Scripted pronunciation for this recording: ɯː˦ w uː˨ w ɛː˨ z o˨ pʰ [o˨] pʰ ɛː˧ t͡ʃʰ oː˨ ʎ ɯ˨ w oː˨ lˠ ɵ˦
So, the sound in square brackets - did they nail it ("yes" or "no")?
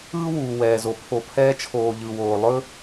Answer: yes